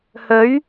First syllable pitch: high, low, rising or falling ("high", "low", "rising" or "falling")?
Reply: rising